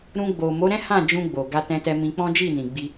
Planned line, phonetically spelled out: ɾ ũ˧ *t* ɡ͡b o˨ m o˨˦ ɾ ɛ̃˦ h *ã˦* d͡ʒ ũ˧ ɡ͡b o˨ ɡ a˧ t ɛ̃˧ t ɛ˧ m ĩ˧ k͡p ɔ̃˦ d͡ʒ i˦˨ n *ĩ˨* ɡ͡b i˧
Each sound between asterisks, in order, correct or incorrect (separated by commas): incorrect, incorrect, correct